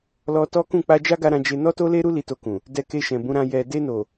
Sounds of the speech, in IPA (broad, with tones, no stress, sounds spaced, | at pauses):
l ɔ˧ t ɔ˦ k ũ˦˨ k͡p a˧ d͡ʒ a˦ ɡ a˧ ɾ ã˧ d͡ʒ e˧ n ɔ˦ t o˦ l e˦ ɾ u˦ l i˧ t o˧ k ũ˨ | d ɛ˧ k e˧ ʃ ɛ̃˨ b ũ˨˦ ɾ ã˧ j ɛ˨ d e˧ n o˨